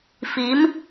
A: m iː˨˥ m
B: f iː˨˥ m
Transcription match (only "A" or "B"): B